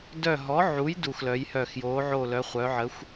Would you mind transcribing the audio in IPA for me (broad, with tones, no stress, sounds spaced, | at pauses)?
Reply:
d œ˦˨ ɦ ɔ˨˥ ʕ u˨˥ j d u˦˨ x l œ˨˥ j h œ˦˨ x j o˨˥ ʕ o˦˨ l œ˨˥ χʷ œ˨˥ ʕ ə˨˥ xʷ